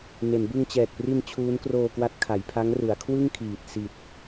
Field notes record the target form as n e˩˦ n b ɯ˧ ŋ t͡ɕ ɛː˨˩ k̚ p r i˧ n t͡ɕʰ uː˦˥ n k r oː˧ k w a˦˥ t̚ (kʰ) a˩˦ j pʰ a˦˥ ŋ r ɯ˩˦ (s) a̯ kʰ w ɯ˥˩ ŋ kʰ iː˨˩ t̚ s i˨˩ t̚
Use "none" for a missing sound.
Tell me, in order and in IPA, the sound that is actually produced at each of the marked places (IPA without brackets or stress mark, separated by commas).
kʰ, none